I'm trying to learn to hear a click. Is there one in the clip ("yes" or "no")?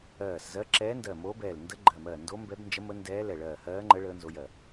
yes